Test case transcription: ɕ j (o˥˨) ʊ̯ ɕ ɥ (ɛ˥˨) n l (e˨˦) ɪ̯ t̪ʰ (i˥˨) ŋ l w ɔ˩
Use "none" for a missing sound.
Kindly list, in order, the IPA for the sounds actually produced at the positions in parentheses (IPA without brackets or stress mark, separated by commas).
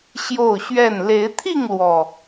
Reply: o˥˨, ɛ˥˨, e˨˦, i˥˨